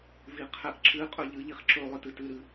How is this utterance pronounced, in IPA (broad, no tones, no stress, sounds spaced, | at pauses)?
v i qʰ ɛ ʔ ǁ ɨ qʼ ɵ ʎ ɨ ʎ i χ ǁ ɵ lˠ ɨ t ɨ t ɨ ɾ ɨ